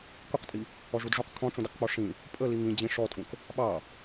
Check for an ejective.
present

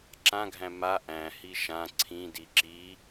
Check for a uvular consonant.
absent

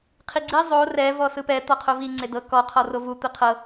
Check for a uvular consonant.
present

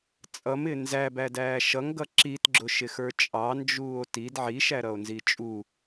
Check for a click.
present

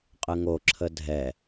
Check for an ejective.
present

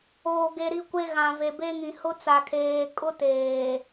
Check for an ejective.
present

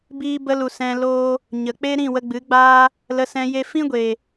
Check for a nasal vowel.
present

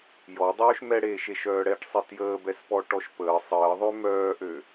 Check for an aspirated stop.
absent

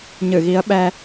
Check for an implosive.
present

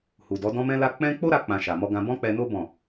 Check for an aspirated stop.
absent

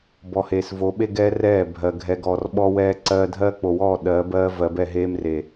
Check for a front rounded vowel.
absent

